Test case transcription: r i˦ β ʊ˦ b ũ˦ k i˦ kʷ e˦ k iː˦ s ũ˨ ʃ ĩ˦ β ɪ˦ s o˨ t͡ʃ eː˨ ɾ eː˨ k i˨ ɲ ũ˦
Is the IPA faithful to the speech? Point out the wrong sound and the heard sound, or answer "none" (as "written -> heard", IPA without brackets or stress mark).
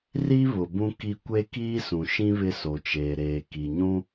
ʊ˦ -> ʊ˨